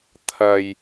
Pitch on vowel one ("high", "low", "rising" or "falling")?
low